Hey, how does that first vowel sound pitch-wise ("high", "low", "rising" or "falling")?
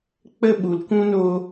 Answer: high